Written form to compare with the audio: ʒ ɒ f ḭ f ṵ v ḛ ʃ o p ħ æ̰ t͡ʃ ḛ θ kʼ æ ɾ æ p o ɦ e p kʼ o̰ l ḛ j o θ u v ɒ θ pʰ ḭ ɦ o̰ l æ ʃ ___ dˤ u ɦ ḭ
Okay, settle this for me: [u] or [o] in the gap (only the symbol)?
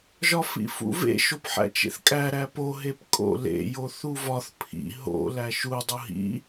u